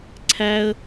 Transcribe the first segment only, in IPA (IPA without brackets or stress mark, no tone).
ǀʰ